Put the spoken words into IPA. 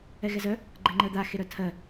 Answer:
ɛɣɛzœ | ɡ͡ǃɛŋ͡ǃɜd̪a xeɾœtʰɜ

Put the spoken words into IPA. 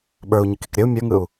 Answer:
ɓə˞u̯ɲɯkik ɾʲəu̯ mʲə˞ŋɯu̯

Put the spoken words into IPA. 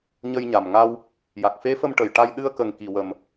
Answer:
ɲə˧jɲa˨˩m ŋa˧w | ja˨˩k̚fe˧˥fə˧m ʈə˨˩j ʈa˧j ɗɨ˧ə̯kə˨˩ŋ ki˨˩wə˨˩m

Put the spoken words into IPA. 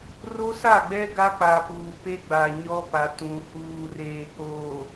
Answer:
ro˦sa˦˨ɡ͡bɛ˦ ɡa˦ k͡pa˨puː˨pe˦ɡ͡ba˨ ɲɔ˦pa˨ tũ˨ huː˨reː˨k͡poː˨

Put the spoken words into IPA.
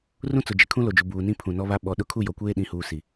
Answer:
rũ˦t͡sʊ˨ d͡ʒɪ˨kʰũ˦ lo˨d͡ʒu˨ buː˨nĩ˦ pʰũ˨nɔ˦βa˦ ɓɔ˨ɗʊ˦ kʰu˦˨jɔ˨kʷeː˦ ɗĩ˨huː˨ si˨

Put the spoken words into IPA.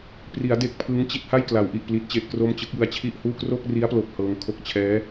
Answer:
pri˩˦a̯ de˦˥k̚pʰɯ˦˥ŋt͡ɕi˥˩t̚ ha˥˩jkla˩˦wʔi˨˩ʔ pli˦˥t̚t͡ɕe˦˥ʔkro˥˩m t͡ɕɯ˦˥k̚jɯ˧a̯t͡ɕʰi˥˩ʔhuː˥˩ kro˥˩k̚ri˦˥a̯plo˨˩k̚ hɤː˧ŋkʰo˥˩k̚ t͡ɕʰɛː˦˥

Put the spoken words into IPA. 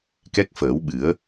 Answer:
kɛ˦˥k̚fəː˨˩˦wɓɨ˨˩˦ə̯

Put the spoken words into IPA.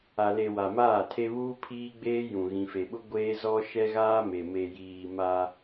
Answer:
a˨le˨ wa˨maː˦˨tʰe˦βuː˦ pʰiː˦ɡ͡beː˦ jũ˨ɣĩ˨fe˨ɓʊ˦ ɡʷeː˦zɔ˦ ʃɛ˦ɣaː˦me˨ me˨jiː˨ ma˦

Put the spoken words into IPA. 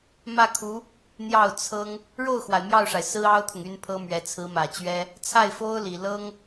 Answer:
mä˥˩kʰu˧˥ | n̪jɑ˥˩ʊ̯t͡sʰɤ˥ŋ | ɻo˥˩ʊ̯xwa˩ɪ̯ mjɑ˥˩ʊ̯ʂa˩ɪ̯ sɹ̩˥ɑ˥ʊ̯t̪ʰʊ˨ŋ y˥npʰɤ˥mɥɛ˧˥ t͡sʰɹ̩˧˥mä˨˩t͡ɕɥɛ˥ | t͡sʰa˥˩ɪ̯fo˥ʊ̯li˨˩ lɤ˥ŋ

